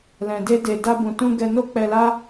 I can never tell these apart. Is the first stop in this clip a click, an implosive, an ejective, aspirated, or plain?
plain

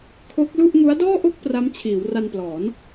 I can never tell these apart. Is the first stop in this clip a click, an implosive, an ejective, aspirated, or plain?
aspirated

